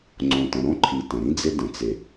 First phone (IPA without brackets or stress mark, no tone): ŋ͡ǀ